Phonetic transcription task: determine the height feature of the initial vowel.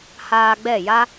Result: low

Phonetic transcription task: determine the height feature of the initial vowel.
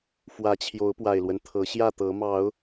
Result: low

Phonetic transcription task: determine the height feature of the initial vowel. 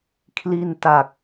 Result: high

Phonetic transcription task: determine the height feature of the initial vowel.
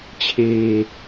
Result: mid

